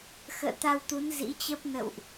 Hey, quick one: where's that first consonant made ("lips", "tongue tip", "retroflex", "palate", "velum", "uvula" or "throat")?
velum